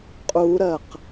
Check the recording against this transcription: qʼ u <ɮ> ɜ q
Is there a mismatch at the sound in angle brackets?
yes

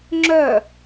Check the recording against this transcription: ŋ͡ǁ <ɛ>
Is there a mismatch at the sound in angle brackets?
yes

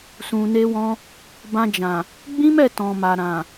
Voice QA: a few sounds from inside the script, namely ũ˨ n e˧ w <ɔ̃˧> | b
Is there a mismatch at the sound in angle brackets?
no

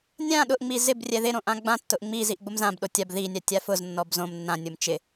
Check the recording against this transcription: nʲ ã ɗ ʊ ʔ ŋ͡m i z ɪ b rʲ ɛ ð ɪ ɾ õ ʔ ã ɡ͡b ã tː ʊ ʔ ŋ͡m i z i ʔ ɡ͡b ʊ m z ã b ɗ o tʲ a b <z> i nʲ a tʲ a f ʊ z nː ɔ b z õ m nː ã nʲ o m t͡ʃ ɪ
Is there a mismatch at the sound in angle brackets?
yes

